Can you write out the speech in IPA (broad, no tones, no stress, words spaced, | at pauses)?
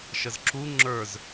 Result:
ʃəzǁu ŋ͡ǁə˞z